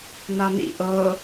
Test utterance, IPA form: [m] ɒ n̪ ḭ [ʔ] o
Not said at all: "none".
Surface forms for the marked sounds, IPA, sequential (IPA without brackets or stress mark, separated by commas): n̪, ʔ